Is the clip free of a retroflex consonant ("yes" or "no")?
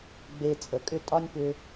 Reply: yes